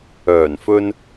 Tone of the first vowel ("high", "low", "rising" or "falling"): low